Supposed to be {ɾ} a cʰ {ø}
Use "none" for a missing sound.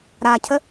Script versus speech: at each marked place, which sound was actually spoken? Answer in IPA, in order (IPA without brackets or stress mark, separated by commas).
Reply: ɾ, ə